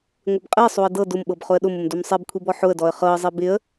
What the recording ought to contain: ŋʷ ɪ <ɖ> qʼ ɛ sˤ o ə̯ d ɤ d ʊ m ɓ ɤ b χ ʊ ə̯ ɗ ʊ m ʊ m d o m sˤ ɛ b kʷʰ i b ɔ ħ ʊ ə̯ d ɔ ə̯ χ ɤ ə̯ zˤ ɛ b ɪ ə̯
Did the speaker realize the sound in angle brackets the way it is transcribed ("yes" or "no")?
no